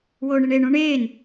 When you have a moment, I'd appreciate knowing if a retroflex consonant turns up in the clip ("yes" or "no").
yes